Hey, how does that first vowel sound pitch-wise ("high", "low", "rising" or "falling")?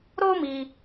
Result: high